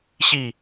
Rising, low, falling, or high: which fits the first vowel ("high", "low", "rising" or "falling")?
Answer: falling